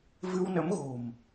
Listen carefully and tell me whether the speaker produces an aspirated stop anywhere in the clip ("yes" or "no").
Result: no